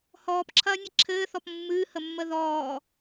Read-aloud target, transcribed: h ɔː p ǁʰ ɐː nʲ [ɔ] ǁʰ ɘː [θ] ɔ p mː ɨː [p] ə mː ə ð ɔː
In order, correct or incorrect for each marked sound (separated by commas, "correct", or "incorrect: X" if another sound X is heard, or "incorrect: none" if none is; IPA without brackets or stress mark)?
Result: incorrect: ə, correct, incorrect: h